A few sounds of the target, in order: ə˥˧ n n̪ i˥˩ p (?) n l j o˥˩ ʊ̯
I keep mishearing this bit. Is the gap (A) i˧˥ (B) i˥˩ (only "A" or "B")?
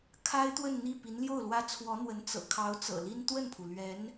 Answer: A